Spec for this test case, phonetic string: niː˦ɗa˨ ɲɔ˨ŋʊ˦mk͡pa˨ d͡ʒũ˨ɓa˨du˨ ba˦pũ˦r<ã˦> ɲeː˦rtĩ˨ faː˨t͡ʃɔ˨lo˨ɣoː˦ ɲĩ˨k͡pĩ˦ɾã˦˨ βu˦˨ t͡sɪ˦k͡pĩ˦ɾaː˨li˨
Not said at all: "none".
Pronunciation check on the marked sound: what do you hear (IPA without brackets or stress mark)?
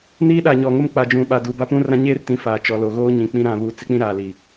ã˦